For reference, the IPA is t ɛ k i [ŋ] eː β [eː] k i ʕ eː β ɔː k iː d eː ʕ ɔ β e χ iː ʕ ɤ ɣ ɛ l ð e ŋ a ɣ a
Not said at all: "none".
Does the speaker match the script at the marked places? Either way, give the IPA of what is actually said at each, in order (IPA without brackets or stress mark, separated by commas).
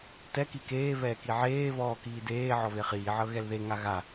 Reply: k, ɛː